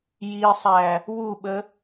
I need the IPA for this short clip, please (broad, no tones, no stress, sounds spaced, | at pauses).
j i sˤ æ | w u ɓ ə